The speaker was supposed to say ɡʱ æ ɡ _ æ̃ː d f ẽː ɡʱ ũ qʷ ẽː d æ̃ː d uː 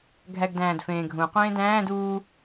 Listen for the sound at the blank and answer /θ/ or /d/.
d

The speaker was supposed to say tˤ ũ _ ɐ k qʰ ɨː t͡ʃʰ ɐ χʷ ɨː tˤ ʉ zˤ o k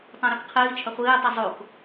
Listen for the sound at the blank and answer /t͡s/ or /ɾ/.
ɾ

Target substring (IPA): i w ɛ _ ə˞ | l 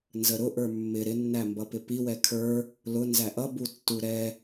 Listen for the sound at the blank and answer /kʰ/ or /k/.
kʰ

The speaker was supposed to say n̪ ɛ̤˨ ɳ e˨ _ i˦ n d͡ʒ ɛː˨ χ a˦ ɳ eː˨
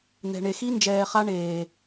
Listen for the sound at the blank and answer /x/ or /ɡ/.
x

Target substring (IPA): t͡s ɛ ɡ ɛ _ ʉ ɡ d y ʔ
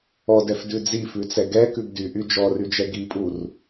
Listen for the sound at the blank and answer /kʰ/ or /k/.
k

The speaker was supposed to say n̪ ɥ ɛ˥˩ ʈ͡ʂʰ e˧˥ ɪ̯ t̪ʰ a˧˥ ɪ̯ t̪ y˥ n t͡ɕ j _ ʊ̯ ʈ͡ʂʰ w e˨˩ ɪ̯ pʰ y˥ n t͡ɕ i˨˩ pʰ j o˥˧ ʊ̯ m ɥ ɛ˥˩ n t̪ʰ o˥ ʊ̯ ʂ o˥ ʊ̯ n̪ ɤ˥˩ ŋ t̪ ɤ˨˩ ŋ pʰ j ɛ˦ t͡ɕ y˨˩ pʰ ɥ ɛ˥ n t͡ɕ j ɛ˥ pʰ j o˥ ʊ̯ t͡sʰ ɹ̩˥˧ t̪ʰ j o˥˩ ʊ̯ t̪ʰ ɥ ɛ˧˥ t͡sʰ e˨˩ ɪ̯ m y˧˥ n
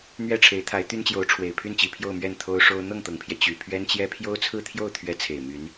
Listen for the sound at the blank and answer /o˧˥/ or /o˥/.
o˧˥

